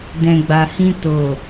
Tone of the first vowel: low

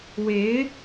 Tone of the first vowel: rising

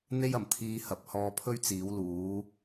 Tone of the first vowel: high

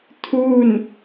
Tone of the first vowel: falling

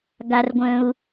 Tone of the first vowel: high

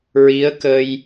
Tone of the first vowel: rising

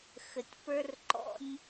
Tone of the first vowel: low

